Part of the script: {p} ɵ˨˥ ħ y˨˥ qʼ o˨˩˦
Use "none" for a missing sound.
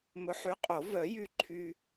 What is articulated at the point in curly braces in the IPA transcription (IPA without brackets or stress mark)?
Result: m